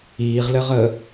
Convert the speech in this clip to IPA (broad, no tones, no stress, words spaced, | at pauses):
iːʁlɘʁəː